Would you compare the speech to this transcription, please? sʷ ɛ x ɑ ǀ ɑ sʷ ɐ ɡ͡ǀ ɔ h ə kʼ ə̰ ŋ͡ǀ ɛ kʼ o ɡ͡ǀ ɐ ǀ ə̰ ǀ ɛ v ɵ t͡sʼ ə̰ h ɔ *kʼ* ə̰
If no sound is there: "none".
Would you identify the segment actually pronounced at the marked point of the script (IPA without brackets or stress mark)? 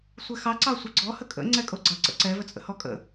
kʼ